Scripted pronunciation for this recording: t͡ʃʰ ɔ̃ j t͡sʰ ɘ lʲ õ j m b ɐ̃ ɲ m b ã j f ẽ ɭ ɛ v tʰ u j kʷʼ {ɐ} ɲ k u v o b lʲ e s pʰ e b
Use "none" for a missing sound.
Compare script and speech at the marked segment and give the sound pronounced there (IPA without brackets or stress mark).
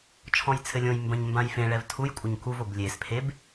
ɐ